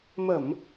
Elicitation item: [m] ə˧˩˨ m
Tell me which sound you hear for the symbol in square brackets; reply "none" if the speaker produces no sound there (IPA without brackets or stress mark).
m